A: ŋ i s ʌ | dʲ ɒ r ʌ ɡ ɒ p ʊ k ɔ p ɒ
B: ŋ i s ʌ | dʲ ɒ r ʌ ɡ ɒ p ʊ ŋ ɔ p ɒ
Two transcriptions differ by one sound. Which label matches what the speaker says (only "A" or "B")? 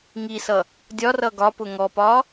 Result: B